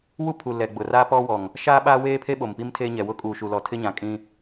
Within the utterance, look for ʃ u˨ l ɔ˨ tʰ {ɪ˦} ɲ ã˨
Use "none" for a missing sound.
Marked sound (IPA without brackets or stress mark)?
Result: ɪ˦